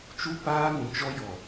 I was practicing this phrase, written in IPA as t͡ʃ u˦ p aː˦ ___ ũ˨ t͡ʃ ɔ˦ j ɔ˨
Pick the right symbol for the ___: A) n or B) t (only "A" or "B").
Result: A